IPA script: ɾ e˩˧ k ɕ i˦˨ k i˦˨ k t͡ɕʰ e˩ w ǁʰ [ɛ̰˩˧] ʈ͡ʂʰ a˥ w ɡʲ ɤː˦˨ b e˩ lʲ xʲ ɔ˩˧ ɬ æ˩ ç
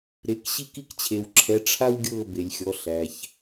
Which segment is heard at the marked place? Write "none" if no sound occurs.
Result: ɛ˩˧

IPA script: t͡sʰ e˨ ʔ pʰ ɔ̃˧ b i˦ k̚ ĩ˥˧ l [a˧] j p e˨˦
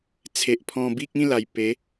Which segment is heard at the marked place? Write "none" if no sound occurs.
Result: a˨˩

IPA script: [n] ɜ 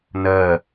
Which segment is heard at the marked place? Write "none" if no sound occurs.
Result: n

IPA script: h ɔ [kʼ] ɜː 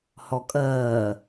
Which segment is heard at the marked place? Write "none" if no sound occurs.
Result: kʼ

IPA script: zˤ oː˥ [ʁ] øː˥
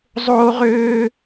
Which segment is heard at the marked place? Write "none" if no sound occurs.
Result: ʁ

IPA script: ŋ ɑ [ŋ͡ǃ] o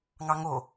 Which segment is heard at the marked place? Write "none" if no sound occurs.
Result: ŋ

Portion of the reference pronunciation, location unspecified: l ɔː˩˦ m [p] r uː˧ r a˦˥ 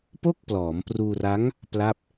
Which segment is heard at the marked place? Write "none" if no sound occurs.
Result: p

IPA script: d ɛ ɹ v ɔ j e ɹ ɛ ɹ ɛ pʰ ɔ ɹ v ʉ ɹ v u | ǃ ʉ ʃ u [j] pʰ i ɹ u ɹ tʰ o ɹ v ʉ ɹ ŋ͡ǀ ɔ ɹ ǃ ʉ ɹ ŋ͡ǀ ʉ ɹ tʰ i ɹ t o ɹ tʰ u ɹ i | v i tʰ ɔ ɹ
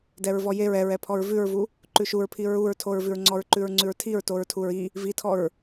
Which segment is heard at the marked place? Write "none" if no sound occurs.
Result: ɹ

